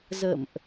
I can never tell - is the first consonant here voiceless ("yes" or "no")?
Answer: no